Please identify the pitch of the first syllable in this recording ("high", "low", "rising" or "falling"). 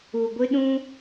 low